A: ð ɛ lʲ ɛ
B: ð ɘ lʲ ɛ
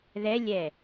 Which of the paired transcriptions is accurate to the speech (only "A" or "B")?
A